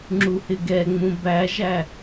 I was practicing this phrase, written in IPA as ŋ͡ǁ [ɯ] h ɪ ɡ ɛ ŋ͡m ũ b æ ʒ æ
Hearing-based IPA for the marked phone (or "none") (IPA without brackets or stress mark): u